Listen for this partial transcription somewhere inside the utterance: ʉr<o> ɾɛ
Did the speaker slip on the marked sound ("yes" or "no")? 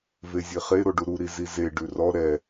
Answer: yes